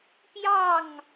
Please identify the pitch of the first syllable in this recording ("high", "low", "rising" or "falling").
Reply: falling